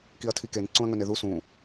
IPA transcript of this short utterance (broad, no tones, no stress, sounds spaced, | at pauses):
k i ɐ̯ tʰ i k e n ǀ ũ ɐ̯ ŋ ɵ n e ð u s ũ